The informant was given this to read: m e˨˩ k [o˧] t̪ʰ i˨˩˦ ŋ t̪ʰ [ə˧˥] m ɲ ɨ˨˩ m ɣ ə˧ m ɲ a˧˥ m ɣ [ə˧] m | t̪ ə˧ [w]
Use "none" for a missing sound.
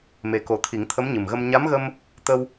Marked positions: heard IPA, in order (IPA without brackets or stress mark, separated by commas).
o˨˩, ə˧˥, ə˧, w